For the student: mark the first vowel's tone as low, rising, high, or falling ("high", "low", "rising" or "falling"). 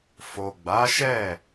low